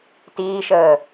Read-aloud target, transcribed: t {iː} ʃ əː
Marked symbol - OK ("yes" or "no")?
yes